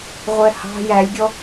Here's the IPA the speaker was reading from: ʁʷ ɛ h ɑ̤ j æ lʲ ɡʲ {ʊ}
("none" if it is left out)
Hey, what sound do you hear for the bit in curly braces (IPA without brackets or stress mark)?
ɔ